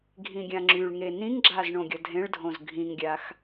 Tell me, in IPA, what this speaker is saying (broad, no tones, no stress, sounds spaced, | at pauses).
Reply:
ɡʱ ĩ ɡʲ ã ŋ͡ǁ y ɭ ŋ e n ĩ ŋ ɡ͡ǁ a z ɳ õ ɡʲ ʌ dʱ ẽ ɭ dʱ õ z ɡʱ ĩ ŋ ɡʲ a x